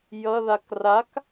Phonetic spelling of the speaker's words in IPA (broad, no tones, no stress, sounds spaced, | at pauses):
j ʌ ð a k r a k